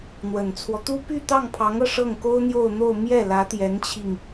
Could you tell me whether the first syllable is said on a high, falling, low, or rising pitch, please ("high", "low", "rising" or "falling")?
low